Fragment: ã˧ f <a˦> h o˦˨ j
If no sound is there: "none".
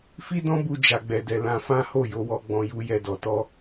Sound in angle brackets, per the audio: ã˦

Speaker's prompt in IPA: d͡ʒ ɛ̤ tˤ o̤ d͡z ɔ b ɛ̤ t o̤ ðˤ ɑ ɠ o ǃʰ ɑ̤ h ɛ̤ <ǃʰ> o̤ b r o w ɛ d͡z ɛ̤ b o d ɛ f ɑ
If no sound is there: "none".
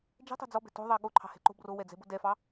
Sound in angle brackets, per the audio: ǃ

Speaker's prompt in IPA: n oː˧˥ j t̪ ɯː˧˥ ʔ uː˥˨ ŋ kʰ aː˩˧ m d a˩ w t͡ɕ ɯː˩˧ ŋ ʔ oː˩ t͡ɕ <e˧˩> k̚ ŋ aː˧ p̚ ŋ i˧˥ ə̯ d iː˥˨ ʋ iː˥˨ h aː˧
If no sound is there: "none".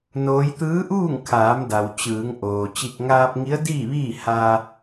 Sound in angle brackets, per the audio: i˧˩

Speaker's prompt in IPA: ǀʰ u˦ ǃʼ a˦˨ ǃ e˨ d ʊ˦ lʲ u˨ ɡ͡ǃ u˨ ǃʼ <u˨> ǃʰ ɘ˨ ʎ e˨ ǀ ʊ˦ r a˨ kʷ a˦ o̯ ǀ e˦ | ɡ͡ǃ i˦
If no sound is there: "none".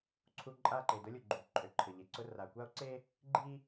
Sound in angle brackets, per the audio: ø˨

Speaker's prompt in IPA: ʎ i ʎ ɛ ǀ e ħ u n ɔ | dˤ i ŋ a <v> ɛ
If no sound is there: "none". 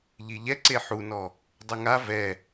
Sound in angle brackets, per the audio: v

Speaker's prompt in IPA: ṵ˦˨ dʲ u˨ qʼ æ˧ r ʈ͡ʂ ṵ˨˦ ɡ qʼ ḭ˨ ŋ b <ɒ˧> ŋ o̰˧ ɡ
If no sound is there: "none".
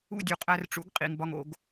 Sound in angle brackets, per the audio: ɒ˧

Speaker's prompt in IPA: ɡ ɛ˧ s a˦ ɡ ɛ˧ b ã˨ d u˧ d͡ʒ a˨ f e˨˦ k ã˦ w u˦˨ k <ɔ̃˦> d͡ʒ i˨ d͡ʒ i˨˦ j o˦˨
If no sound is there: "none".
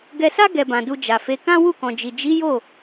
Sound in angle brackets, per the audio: ɔ̃˨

